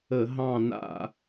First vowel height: mid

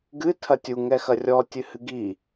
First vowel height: high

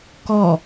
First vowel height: mid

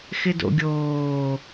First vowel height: high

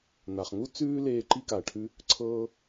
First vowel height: low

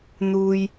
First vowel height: high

